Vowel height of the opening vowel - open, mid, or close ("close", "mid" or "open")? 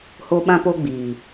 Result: mid